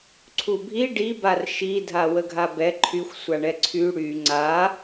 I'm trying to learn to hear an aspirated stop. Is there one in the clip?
yes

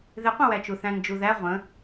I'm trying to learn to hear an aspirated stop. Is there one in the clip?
no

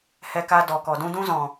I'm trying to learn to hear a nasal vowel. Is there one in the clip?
yes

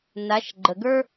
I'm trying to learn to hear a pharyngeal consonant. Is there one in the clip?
no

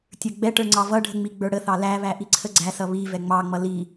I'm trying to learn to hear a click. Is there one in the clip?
yes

